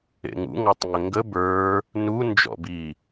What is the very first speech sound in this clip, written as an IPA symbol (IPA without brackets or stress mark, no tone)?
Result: ḛ